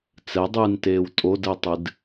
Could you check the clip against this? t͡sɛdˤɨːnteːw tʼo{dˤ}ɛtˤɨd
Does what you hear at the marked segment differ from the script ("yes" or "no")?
yes